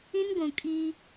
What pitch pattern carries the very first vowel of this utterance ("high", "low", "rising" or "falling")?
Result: high